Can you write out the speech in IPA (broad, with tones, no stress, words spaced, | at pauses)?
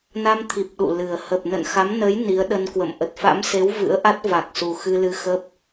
na˧mt̪ʰi˨˩p̚ ɗṵ˧˨lɨ˨˩ə̯ hə˨˩p̚nə̰˧˨nxa˨˦mnə˨˦j ni˨˦ə̯ɗə˧nkwə̰˧˨m ʔə˨˩t̚fa̰˧˥mse˨˦w vɨ̰˧˥ə̯ʔa˦˥t̚va˨˩k̚su˨˩ xɨ˧lɨ˧xə˦˥p̚